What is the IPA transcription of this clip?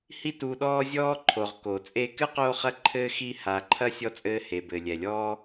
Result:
h i˦ t u˨ ɗ ɔː˦ zʲ ɔː˦ ǃʰ o˩ ʁ k o˩ t͡sʼ e˦ k ɨ˥ q o˦ χ ɐ˦ ǃʰ ɘː˥ x i˦ h a˨ ǃʰ ɐ˥ sʲ ɔ˦ t͡sʼ ɘː˦ h e˩ b ɘ˩ lʲ ɛ˩ lʲ ɔː˥

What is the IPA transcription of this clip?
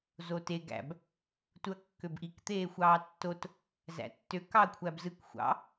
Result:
z o t e ɡ æ̰ b | t u ɐ̯ kː ø b ʔ i k t̪ eː xʷ ɑː tː o t | z æ̰ tː ø k ɑ ɐ̯ kʷʰ æ b z ɯ k xʷ ɑ̰

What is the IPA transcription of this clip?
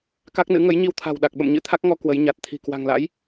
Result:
k a˦˥ k̚ n ɨ̰˧˥ ŋ ə˨˦ j ɲ i˧ w t̪ʰ a̤˨˩ w ɗ a˨˩ k̚ ɓ ə̰˧˨ m ɲ ɨ̰˧˥ t̪ʰ a˦˥ k̚ ŋ ɔ˧ k w ə˨˦ j ɲ a˨˩ t̚ t̪ʰ i̤˨˩ k w a̤˨˩ ŋ l a̰˧˥ j

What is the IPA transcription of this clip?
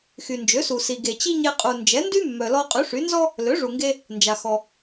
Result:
x y˩ n d͡ʒ ø˩˥ s u˩ s i˩ ɡ e˩ t͡ɕ i˥ ɲ e˧ qʼ u˩ n d͡ʒ ɛ˩˥ n d y˥ mː œ˩ l ɔ˧ qʼ y˩˥ ʂ y˩˥ n z ɔ˥ | l ø˩˥ ʐ u˩ ŋ ɡ e˧ | n d͡ʒ a˩ x ɔ˩

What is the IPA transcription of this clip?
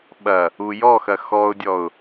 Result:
ɓ ɐ | u j ɔ x ɐ x ɔ ʊ̯ dʲ ɔ ʊ̯

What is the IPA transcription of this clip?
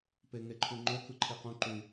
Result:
p e ŋ e ǃʰ u ŋ͡ǃ ø k ɯ ǃʰ i q ũ ǃ y

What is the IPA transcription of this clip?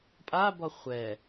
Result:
pʼ a b ɔ χʷ ɛ

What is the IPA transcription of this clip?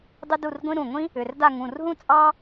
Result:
dˤ ʏ˥ d u˥˨ r ɡʷ ĩ˥ ɾ ũ˩˧˩ ŋʷ ĩ˥ | ʏ˩˧˩ r d a˥˨ ŋ ũ˩˧˩ r ɦ ũ˥ t͡sʼ ɑ˥

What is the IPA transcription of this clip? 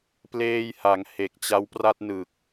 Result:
p l eː˧ j h a˩˦ ŋ h e˨˩ k̚ t͡ɕ a˦˥ w p r a˦˥ t̚ n ɯ˨˩ k̚

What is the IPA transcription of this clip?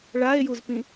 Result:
ɭ a e̯ j u z p ĩ

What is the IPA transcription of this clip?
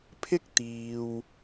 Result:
pʰ ɪ˥ k̚ t̪ iː˨ w

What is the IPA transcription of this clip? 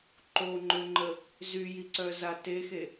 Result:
ǃ o ŋ͡ǃ ø ŋ͡ǃ ə | z y j i ǀ œ z a t e x e

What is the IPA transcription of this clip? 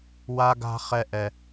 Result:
w a˥ ɡ a̤˥ χ ɛ˦ ʔ ɛ˨

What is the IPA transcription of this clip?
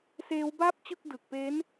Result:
s eː˦˥ w b aː˥˩ p̚ t͡ɕ ɯ˥˩ k̚ d ɯ˨˩ k̚ p e˦˥ n

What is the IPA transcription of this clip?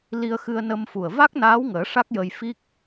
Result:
l i˧ ə̯ x ɨ˧ ə̯ n ə˧ m f u˨˩ ə̯ v a˦˥ k̚ n aː˧˥ w ŋ əː˨˩˦ ʂ a˦˥ k̚ j ə˧ j f i˦˥ k̚

